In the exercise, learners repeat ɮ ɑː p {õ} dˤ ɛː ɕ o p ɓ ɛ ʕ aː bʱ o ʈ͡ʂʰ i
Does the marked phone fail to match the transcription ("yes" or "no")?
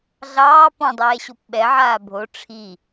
yes